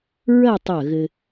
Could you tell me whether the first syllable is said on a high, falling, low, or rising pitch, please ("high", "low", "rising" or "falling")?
falling